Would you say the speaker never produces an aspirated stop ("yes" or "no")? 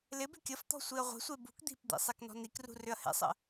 yes